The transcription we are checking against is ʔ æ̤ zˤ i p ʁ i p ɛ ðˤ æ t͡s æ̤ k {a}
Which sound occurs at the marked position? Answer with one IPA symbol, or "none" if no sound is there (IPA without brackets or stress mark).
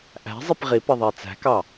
ɑ